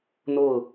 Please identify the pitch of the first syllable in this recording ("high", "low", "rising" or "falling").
falling